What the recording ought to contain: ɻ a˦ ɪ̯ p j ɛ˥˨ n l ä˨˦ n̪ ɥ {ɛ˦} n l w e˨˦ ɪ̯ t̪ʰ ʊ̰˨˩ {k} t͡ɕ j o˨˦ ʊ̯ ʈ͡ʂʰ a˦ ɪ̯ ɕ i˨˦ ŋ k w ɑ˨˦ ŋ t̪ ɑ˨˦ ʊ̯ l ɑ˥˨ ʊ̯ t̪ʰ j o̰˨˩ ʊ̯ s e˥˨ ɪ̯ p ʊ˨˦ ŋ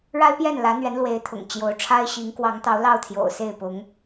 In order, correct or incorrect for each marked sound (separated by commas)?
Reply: incorrect, incorrect